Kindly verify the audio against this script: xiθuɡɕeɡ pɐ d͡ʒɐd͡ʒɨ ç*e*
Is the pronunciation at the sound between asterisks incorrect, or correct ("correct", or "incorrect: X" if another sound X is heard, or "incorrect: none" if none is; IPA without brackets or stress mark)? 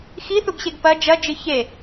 correct